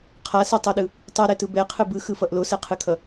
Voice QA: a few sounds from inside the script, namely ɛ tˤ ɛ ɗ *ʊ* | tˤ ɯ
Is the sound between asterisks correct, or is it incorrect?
incorrect